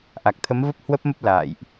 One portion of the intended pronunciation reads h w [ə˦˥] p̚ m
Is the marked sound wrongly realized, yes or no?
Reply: no